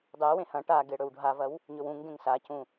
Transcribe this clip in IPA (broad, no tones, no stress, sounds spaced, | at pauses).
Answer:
dˤ e w ẽ h ɐ̃ ʈ a ɡ e ɽ ɵ w ɖʱ a v ɐ w | ɲ ɵ w ũ ŋ ɡ ẽ ŋ s a c ũ